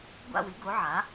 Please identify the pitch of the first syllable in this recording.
falling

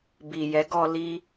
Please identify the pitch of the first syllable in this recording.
low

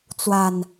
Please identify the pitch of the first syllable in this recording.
low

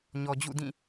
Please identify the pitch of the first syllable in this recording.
low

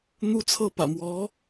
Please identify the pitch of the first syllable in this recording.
high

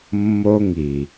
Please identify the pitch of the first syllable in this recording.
high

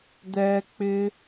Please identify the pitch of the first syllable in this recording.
high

